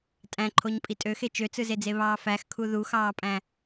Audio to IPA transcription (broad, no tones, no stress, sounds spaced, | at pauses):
tʼ æ̃ ǃʰ o ɲ pʼ i tʼ ø x e t͡ʃ ø t͡s ɯ z e d͡z e β ɑː f æ x kʰ u ð u x ɑː pʼ æ̃